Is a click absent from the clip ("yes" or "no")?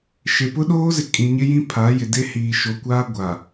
yes